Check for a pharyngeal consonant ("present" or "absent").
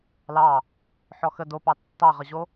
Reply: present